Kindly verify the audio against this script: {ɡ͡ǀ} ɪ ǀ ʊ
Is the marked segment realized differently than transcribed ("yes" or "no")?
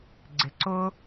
no